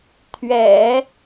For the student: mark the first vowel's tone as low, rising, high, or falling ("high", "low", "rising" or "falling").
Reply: low